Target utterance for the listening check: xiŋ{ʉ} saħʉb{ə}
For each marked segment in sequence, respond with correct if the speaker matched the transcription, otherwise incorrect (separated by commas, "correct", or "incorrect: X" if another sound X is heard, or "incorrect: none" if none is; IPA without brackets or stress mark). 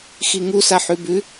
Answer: incorrect: u, incorrect: ʉ